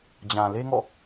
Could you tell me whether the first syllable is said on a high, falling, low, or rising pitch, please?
low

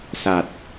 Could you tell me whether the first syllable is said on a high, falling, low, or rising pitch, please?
low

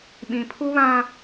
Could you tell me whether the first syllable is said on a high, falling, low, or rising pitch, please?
low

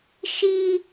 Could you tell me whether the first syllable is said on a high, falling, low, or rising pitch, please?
high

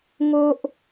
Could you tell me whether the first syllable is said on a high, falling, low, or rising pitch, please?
high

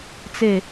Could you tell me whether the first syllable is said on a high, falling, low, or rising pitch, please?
falling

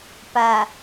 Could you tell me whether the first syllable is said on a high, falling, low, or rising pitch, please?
low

